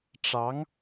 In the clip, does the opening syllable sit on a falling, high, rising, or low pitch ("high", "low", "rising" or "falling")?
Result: rising